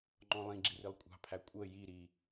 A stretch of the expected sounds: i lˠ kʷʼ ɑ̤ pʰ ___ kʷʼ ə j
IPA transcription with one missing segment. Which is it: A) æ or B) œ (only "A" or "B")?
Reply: A